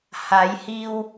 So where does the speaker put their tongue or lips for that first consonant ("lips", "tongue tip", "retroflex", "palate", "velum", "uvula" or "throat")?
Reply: throat